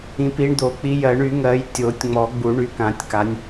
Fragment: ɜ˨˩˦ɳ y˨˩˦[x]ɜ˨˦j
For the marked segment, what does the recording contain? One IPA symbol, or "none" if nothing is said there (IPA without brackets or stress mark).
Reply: ŋ